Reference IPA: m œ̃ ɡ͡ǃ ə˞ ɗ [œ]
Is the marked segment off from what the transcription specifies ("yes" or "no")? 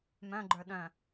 yes